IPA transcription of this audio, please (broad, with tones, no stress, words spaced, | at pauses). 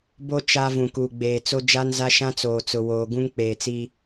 bo˦ t͡ʃa˦ vũ˨kuː˨ɡ͡beː˨t͡so˦ d͡ʒa˦nza˦ʃã˦ t͡soː˨t͡sʊ˨woː˨ ɡũ˦ŋk͡peː˨t͡si˦